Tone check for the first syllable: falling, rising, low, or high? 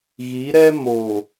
rising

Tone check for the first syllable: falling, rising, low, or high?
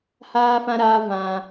high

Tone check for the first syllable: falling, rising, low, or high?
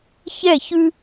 falling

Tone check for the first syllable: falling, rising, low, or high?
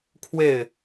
falling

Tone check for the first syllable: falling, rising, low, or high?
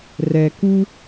low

